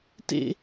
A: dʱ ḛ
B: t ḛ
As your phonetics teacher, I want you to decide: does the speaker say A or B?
B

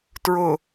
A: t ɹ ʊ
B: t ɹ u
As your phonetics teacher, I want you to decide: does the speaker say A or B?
A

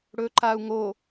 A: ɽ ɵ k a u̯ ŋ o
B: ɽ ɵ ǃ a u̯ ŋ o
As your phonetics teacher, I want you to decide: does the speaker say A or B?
B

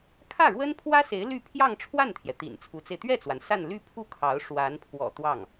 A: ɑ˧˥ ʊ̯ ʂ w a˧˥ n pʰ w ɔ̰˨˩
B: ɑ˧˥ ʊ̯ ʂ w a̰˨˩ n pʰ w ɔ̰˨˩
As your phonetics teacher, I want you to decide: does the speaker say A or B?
A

